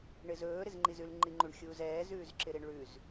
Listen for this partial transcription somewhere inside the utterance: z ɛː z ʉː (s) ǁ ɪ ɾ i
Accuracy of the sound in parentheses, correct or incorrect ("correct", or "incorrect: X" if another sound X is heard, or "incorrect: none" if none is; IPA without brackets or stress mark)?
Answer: incorrect: z